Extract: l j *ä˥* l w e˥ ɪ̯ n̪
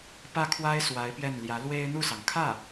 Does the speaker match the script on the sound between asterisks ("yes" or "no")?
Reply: no